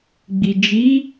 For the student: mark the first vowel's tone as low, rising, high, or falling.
low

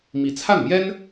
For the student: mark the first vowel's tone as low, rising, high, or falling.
rising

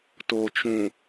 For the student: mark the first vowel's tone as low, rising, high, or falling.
low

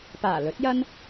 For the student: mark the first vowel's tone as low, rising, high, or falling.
low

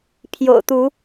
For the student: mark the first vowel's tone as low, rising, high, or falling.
low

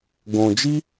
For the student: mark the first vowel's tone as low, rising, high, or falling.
low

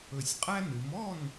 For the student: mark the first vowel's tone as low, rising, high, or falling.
low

